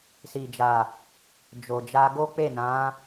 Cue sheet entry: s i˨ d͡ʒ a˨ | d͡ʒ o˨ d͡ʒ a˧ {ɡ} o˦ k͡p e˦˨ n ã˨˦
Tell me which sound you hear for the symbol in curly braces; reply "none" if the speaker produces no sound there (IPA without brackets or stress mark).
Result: ɡ